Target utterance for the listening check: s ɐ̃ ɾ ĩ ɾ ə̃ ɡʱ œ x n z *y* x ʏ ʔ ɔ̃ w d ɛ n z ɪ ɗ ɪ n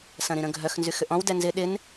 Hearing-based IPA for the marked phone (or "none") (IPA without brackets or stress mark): y